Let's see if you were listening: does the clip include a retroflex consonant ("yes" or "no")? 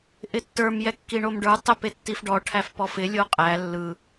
yes